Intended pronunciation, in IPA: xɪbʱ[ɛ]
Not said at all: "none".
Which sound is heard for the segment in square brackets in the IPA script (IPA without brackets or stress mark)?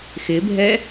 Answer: ɛ